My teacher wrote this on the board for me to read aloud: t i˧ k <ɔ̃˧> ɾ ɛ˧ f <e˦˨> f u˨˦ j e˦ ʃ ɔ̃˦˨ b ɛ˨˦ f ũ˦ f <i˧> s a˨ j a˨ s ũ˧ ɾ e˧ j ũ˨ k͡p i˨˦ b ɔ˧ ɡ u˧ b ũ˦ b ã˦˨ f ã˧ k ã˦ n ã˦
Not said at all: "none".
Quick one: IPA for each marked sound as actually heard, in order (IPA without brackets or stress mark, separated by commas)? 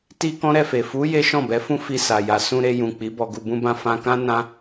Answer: ɔ̃˦, e˨, i˧